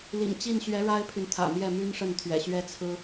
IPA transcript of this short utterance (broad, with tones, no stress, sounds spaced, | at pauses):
l ḭ˨˩ ŋ t͡ɕ i˥˩ n ɕ ɥ ɛ˧˥ ɻ a˥ ɪ̯ pʰ y˨ n t̪ʰ ä̰˨˩ m j ɛ˥˩ m y˥ n ʂ ə˥˩ n t̪ʰ ɥ ɛ̰˨˩ ɕ ɥ ɛ˥ t͡sʰ ɹ̩˥